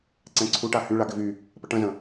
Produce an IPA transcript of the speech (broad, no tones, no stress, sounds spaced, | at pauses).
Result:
ǀ ɛ̃ ǀʰ u ʈ a h y ɭ a ɡ ɪ v y | p ə ʈ ə̃ z ə̃